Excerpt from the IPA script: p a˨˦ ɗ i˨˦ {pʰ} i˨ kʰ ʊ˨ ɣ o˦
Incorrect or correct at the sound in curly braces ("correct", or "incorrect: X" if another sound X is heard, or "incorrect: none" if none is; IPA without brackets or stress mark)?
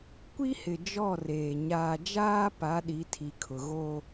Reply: incorrect: tʰ